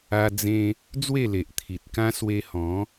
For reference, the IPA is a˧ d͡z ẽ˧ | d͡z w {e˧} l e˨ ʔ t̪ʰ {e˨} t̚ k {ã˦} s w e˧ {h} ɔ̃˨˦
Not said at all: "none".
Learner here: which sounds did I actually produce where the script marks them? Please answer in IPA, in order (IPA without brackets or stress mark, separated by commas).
e˥˧, i˨, ã˦, h